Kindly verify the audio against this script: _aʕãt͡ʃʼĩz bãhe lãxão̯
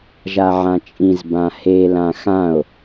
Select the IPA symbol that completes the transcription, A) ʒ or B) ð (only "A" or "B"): A